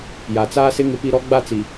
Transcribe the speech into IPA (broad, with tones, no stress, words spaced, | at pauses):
ja˨t͡saː˦sɪ˦ ŋɪ˦pi˦ ɾɔ˦ɡ͡ba˦ t͡si˨